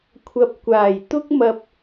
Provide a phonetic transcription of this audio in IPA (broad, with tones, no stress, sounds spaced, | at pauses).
kʷʰ ɐ˨ p̚ kʷ aː˨˩ j t̪ ʊ˥ k̚ m ɐ˧ p̚